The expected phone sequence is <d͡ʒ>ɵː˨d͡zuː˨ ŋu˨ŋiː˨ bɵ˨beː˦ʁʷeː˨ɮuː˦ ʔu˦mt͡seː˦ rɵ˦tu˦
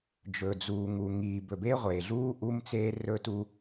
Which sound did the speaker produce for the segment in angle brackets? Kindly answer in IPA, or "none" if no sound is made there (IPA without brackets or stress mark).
d͡ʒ